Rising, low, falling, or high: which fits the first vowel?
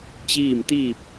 falling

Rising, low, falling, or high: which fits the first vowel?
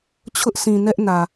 high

